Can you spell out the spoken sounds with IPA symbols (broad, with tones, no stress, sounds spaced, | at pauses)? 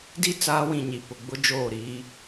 d i˦˨ t͡s aː˦ w ĩ˨ ɲ i˨ p ʊ˨ ɡ͡b ʊ˦ d͡ʒ oː˦˨ ɾ iː˦